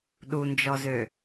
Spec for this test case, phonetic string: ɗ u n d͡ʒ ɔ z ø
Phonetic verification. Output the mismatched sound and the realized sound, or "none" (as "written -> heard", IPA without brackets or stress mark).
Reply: none